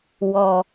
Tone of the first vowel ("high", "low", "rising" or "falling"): low